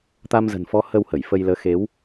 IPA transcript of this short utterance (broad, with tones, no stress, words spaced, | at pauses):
t̪a˧mzə̤˨˩nfɔ˨˦ hə˧whə˧˩j fə˧jləː˨˦ xe˨˦w